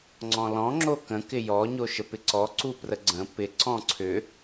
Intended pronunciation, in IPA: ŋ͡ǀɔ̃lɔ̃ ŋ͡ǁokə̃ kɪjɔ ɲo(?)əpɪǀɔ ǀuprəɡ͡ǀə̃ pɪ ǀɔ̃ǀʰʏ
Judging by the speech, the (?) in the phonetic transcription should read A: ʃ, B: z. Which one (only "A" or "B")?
A